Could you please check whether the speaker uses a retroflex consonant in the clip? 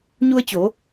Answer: no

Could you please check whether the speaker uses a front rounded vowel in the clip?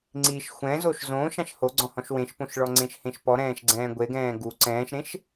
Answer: no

